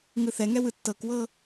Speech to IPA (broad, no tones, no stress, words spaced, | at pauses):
ŋɯθɛŋɛ wɯtːɤkwɤ